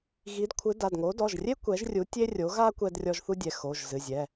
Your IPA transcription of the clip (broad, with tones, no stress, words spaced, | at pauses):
ɣi˨˥dkʷʰɨ˨˥ da˩˧˩dŋo˨˥ dɔ˩˧˩ʒrʲe˥ kʷɛ˨˥ʒrʲu˨˥tʲe˥rʲo˨˥ ɣa˥ kʷɛ˥drʲɔ˥ʒ θu˥dʲɛ˩˧˩ xo˩˧˩ʒzɨ˩˧˩ zʲɛ˩˧˩